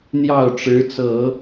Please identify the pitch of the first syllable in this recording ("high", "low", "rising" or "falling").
falling